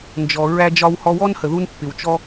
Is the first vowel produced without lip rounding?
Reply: no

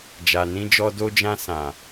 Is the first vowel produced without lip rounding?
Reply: yes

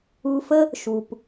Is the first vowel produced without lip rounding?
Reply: no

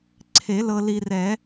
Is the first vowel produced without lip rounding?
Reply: yes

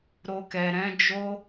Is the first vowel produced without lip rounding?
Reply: no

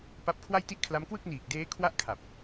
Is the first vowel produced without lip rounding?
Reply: yes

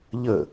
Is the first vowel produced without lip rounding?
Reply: yes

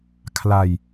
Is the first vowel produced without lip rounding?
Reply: yes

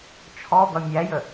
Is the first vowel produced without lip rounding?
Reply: no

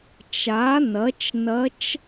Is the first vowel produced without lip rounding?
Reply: yes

